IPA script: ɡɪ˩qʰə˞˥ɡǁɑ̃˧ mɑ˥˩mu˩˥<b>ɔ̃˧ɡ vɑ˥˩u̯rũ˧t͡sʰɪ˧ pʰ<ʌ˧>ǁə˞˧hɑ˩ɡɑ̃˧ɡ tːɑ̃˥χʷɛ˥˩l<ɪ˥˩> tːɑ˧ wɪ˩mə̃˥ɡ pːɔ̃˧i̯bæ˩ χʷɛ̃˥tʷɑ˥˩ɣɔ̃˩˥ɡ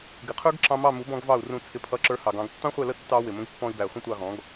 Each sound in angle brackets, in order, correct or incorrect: correct, correct, incorrect

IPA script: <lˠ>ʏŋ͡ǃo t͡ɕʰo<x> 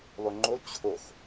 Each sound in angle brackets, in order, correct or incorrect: correct, correct

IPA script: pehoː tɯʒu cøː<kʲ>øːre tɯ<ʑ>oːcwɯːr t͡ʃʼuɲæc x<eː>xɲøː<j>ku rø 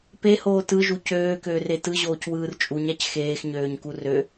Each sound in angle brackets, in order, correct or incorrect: incorrect, correct, correct, incorrect

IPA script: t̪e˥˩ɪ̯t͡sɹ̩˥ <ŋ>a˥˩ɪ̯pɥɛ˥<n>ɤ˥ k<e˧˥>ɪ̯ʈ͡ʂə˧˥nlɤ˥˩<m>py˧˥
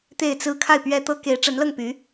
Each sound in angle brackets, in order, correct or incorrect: incorrect, incorrect, correct, incorrect

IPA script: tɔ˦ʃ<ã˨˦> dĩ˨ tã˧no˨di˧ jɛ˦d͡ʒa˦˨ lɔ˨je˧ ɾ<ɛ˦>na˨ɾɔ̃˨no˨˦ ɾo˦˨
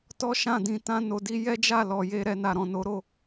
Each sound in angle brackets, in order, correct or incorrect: incorrect, incorrect

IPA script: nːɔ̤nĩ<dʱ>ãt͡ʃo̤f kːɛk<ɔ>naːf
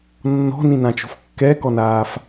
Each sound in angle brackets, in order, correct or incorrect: incorrect, correct

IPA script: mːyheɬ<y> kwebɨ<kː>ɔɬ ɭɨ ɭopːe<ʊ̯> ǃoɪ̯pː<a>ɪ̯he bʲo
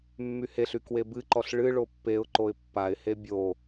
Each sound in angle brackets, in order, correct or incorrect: correct, incorrect, correct, correct

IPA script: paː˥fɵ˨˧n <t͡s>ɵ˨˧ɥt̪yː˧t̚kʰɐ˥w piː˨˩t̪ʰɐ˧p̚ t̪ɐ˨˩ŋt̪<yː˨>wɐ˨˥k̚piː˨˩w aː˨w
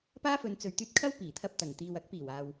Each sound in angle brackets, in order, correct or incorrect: correct, incorrect

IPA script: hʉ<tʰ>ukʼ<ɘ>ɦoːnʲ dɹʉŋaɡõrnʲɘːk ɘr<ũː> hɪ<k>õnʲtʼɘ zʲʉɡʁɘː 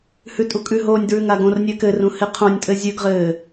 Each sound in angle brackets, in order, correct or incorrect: incorrect, incorrect, incorrect, incorrect

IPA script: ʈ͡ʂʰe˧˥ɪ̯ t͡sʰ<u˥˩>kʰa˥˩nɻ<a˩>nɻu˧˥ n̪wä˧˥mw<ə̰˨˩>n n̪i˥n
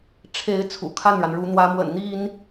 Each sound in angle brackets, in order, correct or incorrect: incorrect, correct, correct

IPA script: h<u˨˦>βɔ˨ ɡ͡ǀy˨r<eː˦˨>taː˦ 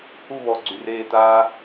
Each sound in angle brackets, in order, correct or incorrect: incorrect, correct

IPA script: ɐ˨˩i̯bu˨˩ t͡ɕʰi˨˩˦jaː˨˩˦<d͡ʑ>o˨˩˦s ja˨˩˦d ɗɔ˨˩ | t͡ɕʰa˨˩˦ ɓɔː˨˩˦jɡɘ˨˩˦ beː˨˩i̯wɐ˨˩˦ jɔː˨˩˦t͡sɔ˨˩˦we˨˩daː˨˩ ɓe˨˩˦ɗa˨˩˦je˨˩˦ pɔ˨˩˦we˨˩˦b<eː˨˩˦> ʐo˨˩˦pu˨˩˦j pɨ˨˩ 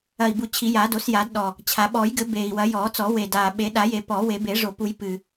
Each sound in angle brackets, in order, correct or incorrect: incorrect, incorrect

